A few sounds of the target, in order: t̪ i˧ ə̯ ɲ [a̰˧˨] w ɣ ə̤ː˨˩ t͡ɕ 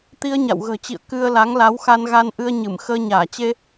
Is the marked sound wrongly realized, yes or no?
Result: no